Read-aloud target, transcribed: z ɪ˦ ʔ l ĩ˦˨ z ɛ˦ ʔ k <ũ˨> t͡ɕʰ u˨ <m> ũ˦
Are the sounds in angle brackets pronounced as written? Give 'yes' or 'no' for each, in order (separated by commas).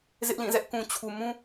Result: yes, yes